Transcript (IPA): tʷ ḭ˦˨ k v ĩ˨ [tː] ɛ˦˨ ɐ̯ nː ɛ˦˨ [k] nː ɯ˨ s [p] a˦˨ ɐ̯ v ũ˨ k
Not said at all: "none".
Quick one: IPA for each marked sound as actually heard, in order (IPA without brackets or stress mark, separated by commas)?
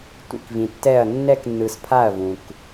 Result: tː, k, pʰ